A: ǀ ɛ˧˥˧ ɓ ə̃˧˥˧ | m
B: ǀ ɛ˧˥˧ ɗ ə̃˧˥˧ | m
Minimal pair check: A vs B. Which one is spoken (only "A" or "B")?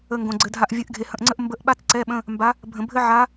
A